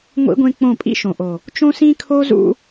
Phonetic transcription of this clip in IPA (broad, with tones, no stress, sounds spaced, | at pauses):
ŋʷ ḭ˦ ɡʷ ẽ˦ k͡p õ˦˨ pʼ ḭ˦ ʃ õ˨ ʔ o˨ | t͡ʃ õ˦ s ĩ˦ kʰ o˦ z ṵ˦